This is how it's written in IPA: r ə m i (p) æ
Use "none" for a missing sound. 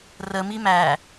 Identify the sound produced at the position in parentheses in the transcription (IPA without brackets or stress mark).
m